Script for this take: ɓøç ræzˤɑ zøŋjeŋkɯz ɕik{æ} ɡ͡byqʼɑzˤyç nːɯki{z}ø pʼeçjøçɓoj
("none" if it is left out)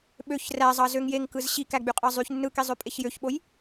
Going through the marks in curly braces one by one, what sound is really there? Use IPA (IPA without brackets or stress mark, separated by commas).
æ, zˤ